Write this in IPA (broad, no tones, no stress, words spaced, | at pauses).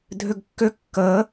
dʱʏɡkːʏ kːəː